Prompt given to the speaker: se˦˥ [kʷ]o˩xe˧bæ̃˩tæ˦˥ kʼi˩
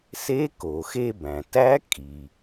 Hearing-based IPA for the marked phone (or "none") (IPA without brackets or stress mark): k